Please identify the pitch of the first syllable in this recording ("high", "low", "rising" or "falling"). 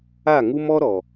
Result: falling